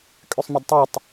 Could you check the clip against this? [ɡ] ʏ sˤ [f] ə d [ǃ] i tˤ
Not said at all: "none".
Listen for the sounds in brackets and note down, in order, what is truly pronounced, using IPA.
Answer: kʼ, m, tˤ

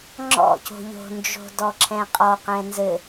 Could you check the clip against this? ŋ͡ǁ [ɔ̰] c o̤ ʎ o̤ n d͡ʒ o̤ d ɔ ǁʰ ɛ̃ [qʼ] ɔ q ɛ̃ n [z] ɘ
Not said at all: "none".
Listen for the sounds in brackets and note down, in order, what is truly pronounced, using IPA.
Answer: ɔ̰, qʼ, z

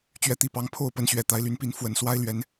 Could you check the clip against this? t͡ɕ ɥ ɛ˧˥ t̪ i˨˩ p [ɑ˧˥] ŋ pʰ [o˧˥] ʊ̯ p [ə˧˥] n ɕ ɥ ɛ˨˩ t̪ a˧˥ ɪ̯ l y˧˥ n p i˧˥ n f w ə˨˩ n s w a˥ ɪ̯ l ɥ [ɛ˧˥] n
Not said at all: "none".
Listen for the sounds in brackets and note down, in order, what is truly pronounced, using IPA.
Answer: ɑ˧˥, o˥˩, ə˧˥, ɛ˧˥

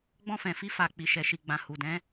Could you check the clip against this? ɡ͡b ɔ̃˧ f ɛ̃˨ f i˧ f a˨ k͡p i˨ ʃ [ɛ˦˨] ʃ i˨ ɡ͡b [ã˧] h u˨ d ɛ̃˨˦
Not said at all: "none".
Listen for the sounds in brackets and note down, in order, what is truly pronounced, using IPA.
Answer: ɛ˨, ã˨

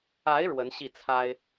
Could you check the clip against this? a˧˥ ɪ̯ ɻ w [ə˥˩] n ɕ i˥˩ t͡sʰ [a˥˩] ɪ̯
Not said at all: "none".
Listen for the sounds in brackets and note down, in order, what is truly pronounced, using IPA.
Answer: ə˧˥, a˥

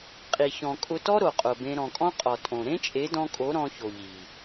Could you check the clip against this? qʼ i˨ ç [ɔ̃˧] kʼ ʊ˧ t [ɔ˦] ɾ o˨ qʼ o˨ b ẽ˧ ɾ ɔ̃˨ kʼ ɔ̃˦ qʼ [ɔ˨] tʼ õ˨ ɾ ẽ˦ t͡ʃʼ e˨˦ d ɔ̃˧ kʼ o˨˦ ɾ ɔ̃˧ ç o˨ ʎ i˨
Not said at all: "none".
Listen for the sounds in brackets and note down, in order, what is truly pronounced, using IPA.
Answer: ɔ̃˨, ɔ˦, ɔ˨

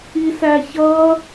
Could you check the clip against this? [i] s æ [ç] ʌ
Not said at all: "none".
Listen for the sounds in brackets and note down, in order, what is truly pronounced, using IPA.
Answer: i, ç

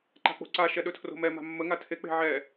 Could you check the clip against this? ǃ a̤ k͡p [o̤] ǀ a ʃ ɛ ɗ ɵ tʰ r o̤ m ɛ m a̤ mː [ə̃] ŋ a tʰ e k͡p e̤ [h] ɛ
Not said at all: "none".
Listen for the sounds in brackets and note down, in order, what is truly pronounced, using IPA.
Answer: o̤, ə, ʕ

